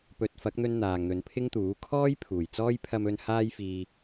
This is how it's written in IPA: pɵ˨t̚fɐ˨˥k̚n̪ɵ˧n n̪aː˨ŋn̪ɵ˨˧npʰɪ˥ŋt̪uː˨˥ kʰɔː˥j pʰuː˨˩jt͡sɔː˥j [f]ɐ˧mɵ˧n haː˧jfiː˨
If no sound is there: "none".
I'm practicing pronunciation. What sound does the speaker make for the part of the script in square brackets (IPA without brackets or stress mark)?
pʰ